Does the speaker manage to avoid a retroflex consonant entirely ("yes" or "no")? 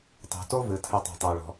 no